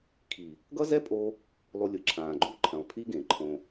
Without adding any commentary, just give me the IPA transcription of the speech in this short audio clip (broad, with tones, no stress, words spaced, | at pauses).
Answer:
kʰi˨ | ɡʌ˦zɛ˦pʼo˧ | lˠu˧lʲɯ˨ǁʰãː˨ ɡ͡ǃu˦ǃʰɛ̃˨lˠpʰi˦ ɡẽ˨ǃʰõ˧